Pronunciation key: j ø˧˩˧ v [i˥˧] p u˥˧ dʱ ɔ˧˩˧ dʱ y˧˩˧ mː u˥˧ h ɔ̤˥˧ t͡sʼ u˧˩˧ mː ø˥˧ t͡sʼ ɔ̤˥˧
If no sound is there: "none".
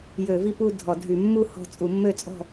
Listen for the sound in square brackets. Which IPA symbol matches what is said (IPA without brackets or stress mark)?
i˥˧